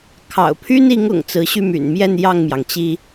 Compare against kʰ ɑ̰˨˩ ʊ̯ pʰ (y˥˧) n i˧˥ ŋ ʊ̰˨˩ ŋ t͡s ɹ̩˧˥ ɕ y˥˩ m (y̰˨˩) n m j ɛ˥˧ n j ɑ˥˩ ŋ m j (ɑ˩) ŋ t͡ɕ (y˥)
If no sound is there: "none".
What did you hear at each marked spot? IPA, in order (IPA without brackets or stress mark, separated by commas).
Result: y˥, y̰˨˩, ɑ˩, i˥